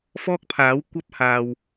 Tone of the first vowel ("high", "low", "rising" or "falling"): high